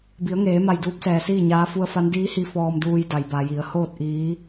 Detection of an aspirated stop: absent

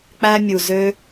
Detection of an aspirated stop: absent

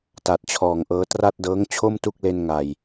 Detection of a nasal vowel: absent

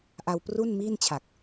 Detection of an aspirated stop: present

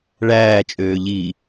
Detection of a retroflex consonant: present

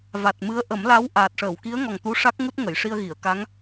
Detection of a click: absent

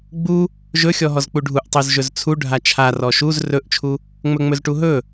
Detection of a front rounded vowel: absent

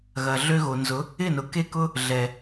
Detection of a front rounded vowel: present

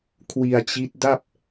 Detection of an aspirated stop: present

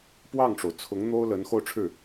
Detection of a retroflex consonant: present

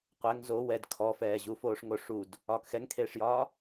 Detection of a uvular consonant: present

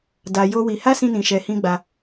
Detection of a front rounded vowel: absent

